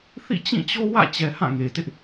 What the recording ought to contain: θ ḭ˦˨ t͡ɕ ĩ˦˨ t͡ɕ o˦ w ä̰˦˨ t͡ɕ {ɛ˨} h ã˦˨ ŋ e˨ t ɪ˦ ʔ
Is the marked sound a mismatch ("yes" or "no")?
no